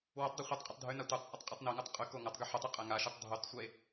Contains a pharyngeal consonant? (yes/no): yes